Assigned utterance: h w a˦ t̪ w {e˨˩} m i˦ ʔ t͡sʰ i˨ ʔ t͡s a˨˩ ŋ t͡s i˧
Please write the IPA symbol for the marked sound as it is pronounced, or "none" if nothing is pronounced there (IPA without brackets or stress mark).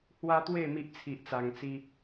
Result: e˥˧